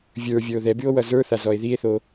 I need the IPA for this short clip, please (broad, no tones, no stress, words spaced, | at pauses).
vʲə˞vʲə˞o̯ ðɛbyo̯ wʌzə˞θa zɔe̯ðie̯θo